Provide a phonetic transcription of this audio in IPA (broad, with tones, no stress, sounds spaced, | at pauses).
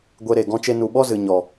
ɡʷ e˧ ɾ e˨ ɡ ɔ̃˦ t͡ʃ e˦ n u˨ ɓ ɔ˦ z ɨ˨ ɲ ɔ˨